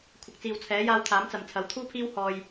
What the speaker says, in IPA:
kʷʰ ɐ˨ k̚ t͡s iː˨ w t͡sʰ ɛː˨˥ j aː˧ w t̪ʰ aː˨˥ m t͡s ɐ˨ m t͡sʰ ɐ˨˥ w t̪ʰ uː˥ pʰ iː˥ w h ɔː˧ j

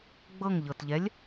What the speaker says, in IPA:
ɡ͡b ɤ ŋ ʎ ɤ t ʎ ɛ lʲ

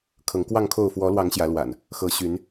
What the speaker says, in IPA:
kʰ ɤ˨˦ ŋ k w ɑ˥˨ ŋ kʰ o˥˨ ʊ̯ f w ɔ˨˦ l w ɑ˨˦ ŋ ɕ j ä˨˦ l w a̰˨˩ n | x ɤ˨˦ ɕ y˨˦ n

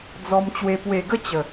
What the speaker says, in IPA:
d͡z ɔ˧ m t͡ɕ w e˧ p w e˨˩ ɡ ə˦ t͡ɕ ə˨˩

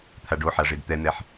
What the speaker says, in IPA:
t̪ʰ a ɖ o ħ a ʐ e d t̪ ɛ n̪ ɛ ħ

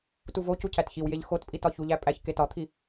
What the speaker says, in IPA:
t u v o c u cʰ æ t ç i w j e ʎ x o t pʼ i t ɒ ç u ʎ æ pʼ æ ç k e t ɒ t̪ʰ i

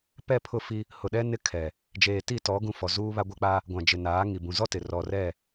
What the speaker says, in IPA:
p ɛ˦˨ pʰ ʊ˦˨ f i˦ | h ʊ˨ ɗ ɛ˦ n ɪ˦ kʰ ɛ˨ | d͡ʒ eː˨ t i˦˨ t ɔ˨˦ ɡ ũ˦ f ɔ˨ z uː˦ β a˦ ɡʷ ɛ˦ k͡p a˦ | ɡʷ ã˨ d͡ʒ ɪ˨ n aː˨˦ ŋ i˨ b ũ˨ z ɔ˦ t ɪ˨ r ɔ˨ r ɛ˦˨

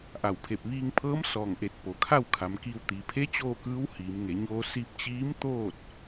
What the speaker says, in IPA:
ʔ a˧˩ w pʰ e˧˩ p̚ ʋ iː˧ ŋ pʰ ɤː˧˥ m s ɔː˧˩ ŋ ʔ e˧˩ t̚ p o˩ kʰ a˥˨ w kʰ a˩˧ m k iː˧ w t̪ iː˩ pʰ e˧˥ t͡ɕ oː˥˨ k ɯː˧˥ w h iː˩˧ m ŋ e˩˧ ɲ oː˧ s i˧ p̚ t͡ɕ iː˧˥ m t̪ oː˥˨ t̚

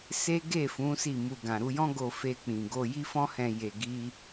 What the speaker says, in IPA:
s e˦ ɡ e˦˨ f ũ˨˦ s i˦˨ m u˧ ɡ ã˨ ɾ u˧ j ɔ̃˦ ɡ o˧ f e˧ k͡p ĩ˨ ɡ o˧ j i˦ f ɔ̃˦ h ɛ̃˧ j e˧ ɡ i˦

